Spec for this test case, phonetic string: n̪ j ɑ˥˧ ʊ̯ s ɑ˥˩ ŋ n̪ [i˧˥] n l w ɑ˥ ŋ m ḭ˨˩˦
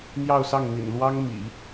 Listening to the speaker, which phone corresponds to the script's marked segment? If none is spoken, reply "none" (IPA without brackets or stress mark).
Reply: ḭ˨˩